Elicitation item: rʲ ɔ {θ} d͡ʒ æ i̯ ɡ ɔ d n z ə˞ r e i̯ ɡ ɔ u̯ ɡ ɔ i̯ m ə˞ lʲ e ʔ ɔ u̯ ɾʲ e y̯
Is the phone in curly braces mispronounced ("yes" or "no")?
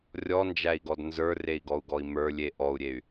yes